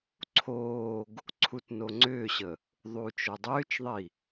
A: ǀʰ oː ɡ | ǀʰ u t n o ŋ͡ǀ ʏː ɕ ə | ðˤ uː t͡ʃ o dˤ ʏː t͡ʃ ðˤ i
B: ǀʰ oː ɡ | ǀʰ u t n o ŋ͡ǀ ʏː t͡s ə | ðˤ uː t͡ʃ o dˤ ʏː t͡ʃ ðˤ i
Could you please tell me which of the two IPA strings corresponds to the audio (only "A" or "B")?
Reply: A